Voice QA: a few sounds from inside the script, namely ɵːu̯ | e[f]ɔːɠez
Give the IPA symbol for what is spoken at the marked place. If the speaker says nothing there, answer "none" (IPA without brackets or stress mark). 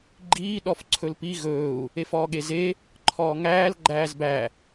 f